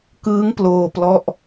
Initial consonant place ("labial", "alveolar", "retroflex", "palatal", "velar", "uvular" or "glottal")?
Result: velar